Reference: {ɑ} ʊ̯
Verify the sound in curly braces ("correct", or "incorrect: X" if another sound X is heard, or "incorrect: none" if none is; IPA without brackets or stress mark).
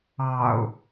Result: correct